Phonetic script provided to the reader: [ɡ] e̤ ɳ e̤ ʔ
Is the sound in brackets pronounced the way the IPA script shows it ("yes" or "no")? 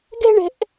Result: yes